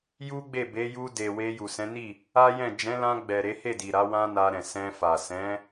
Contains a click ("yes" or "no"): no